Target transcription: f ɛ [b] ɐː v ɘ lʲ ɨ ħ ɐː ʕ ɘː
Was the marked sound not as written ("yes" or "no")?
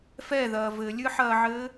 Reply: yes